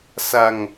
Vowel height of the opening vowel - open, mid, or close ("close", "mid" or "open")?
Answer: open